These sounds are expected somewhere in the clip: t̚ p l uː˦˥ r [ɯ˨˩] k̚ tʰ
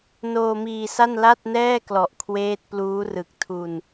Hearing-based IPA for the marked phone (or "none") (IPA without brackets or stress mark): ɯ˨˩